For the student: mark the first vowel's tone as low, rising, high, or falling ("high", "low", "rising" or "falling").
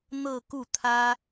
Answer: falling